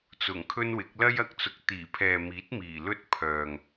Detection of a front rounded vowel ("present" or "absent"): present